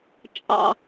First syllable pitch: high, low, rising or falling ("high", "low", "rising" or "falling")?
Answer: low